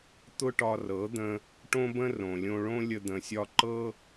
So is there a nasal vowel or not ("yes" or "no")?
yes